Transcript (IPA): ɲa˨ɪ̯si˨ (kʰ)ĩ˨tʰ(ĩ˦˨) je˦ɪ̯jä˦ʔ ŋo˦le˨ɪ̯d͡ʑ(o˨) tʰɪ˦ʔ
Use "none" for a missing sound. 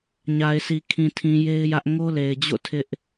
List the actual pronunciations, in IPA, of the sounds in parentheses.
kʰ, ĩ˨, o̰˦˨

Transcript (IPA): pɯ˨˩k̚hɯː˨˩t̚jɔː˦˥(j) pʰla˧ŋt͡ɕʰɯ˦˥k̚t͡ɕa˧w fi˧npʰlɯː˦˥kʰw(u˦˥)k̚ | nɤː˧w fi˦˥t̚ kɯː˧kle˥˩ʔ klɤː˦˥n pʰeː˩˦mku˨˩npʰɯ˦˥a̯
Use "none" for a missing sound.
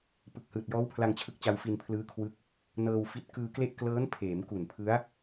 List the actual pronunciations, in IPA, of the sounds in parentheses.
w, ɯ˦˥

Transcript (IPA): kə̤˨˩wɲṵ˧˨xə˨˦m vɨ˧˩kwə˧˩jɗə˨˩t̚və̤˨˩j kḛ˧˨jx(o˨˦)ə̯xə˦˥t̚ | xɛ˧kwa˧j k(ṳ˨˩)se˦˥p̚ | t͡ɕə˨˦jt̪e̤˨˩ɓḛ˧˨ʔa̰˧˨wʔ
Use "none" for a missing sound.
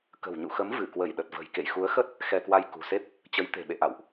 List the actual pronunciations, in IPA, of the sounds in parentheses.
u˨˦, ṳ˨˩

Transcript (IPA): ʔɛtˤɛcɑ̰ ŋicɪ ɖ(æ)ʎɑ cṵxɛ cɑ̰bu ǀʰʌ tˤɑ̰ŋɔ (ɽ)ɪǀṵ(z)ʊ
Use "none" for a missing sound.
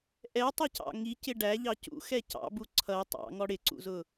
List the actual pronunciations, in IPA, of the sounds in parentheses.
æ, ɽ, z

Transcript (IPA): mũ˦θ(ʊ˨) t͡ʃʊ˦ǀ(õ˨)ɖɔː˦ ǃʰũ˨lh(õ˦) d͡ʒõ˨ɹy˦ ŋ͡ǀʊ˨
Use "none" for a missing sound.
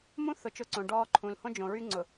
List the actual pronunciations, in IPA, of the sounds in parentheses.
ʊ˨, õ˨, õ˦

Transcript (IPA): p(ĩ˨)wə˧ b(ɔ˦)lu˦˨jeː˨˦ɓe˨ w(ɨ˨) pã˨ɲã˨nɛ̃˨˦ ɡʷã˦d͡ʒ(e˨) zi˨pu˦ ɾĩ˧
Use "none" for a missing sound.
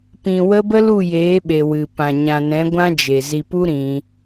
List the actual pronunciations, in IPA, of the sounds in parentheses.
ĩ˨, ə˦, ɨ˨, e˨

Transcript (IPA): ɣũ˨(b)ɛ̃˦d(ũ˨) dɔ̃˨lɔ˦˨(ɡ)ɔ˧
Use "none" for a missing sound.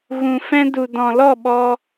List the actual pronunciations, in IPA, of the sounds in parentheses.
f, u˨, ɓ

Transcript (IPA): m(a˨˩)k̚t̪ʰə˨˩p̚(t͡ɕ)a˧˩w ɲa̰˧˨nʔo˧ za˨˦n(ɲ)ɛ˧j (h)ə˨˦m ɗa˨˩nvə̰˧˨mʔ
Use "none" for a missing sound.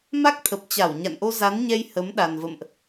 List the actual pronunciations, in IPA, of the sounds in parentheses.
a˦˥, t͡ɕ, ɲ, h

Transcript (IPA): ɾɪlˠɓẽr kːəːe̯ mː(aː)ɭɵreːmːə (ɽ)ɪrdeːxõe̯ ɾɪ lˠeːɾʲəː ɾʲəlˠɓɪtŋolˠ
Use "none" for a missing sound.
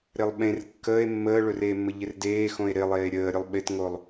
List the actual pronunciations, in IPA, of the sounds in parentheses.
əː, ʎ

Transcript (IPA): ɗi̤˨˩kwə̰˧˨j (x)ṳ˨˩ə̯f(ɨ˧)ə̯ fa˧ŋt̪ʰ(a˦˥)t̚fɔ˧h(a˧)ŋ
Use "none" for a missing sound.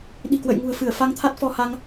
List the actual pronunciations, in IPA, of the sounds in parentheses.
ŋ, ɨ˧˩, a˦˥, a˧

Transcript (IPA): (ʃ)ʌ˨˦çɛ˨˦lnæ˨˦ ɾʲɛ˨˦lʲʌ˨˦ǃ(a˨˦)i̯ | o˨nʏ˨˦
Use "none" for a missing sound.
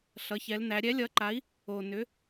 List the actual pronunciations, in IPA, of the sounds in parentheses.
ɬ, a˨˦

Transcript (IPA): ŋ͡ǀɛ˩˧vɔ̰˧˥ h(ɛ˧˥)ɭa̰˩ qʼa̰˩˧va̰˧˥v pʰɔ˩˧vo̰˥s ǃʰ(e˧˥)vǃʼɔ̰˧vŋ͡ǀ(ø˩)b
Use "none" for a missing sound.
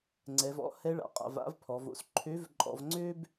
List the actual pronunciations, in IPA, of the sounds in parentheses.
ɛ˧˥, ø˧˥, ø˥

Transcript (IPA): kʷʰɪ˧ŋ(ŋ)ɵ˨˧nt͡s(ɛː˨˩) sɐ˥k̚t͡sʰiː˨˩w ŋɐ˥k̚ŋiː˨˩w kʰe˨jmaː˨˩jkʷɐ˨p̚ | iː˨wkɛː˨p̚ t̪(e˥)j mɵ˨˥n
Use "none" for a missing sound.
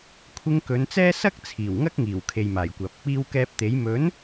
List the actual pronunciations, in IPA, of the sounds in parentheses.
k, ɛː˥, e˨˥

